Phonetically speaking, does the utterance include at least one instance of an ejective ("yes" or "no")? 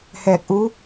no